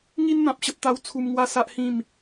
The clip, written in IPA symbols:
ŋ i˦ n n̪ ã˨ p̚ ɕ ə˦ p̚ t̪ a˦ w t͡sʰ u˧ m ŋ w a˦ s a˦ ʔ h ĩ˥˧ m

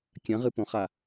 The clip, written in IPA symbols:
kʲ ɐ̃ ʁ ɨ p õ χ a

